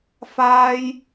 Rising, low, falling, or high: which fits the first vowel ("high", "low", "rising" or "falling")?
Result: high